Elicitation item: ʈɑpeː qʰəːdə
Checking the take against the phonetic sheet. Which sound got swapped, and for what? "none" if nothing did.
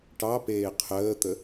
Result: d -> t̪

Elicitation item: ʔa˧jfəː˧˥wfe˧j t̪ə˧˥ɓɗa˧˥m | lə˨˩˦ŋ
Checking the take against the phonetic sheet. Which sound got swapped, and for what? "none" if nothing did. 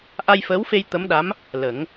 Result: ɓ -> m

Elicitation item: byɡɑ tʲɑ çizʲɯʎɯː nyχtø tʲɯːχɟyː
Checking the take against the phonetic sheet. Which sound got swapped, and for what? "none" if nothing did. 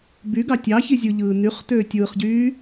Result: none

